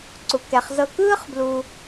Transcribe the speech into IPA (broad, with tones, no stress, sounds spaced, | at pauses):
ǀ u˩ k ɛ˩ χ z ɤ˧ k ɯː˥ χ b l u˩